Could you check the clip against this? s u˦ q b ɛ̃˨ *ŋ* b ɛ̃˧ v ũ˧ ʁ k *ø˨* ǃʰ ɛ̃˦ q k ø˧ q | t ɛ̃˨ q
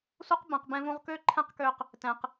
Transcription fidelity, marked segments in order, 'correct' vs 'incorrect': incorrect: q, incorrect: ø˦

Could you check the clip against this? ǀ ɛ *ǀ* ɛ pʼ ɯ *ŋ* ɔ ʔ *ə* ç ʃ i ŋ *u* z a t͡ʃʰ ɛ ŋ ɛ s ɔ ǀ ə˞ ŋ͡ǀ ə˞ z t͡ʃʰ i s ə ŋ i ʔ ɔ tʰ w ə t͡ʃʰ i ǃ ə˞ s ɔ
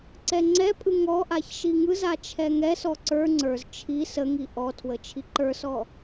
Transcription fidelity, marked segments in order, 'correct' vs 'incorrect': incorrect: ŋ͡ǀ, correct, incorrect: a, incorrect: ɯ

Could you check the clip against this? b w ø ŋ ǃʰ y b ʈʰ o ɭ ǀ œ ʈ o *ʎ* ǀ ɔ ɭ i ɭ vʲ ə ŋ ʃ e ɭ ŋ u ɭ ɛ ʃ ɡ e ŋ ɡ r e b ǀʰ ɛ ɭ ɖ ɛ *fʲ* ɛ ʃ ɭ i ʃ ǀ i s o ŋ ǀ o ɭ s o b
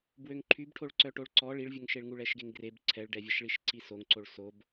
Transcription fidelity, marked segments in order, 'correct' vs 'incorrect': incorrect: ɭ, incorrect: vʲ

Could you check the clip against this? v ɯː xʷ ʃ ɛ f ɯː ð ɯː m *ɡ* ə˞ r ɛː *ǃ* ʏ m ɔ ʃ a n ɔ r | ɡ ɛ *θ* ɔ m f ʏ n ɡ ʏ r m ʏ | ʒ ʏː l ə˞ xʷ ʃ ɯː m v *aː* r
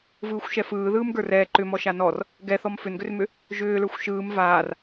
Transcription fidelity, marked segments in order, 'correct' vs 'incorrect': correct, correct, correct, correct

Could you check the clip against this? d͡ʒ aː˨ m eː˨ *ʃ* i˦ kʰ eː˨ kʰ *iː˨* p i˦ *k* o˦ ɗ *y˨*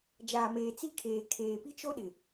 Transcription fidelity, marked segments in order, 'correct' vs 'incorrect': incorrect: t͡s, incorrect: eː˨, incorrect: t͡ʃ, incorrect: ɪ˨

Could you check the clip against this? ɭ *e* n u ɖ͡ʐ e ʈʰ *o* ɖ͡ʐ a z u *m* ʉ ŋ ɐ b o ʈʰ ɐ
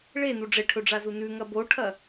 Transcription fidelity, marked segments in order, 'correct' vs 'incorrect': correct, incorrect: ɵ, incorrect: n

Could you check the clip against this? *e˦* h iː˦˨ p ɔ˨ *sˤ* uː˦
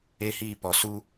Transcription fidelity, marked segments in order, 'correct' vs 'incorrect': correct, incorrect: s

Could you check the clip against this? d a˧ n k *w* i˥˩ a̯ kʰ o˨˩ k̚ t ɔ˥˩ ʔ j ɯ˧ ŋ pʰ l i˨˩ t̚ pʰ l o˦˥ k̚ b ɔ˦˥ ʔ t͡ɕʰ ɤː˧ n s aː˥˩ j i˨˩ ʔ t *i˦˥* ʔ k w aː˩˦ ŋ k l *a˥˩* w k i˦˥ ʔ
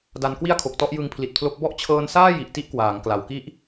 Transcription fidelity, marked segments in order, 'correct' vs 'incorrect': correct, incorrect: i˥˩, incorrect: a˩˦

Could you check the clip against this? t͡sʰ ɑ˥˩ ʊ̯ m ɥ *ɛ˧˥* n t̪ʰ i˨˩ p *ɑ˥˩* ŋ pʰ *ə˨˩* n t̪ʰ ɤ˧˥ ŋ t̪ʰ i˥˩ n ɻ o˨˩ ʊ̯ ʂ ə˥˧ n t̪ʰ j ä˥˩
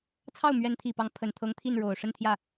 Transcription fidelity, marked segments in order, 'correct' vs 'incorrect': correct, incorrect: ɑ˧˥, correct

